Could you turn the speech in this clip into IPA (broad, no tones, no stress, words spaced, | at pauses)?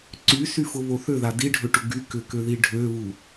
ǀysyfʊβo θøða diɖʱøʈʊ ɡy kʏkøði ɖʱøβu